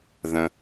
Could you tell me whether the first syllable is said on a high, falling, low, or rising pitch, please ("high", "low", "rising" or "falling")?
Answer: low